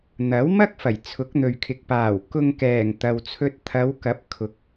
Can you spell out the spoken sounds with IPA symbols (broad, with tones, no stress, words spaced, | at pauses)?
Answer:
n̪ɐ˨˥wmɐ˥k̚ fɐ˨˩jt͡sʰʊ˨˥k̚n̪ɵ˨ɥkʰɪ˨k̚ paː˨˩w kʊ˧ŋkɛː˨˩ŋ t̪ɐ˨wt͡sʰɵ˧t̚ t̪ʰɐ˨˧wkɐ˨˥p̚ kʰʊ˨˥k̚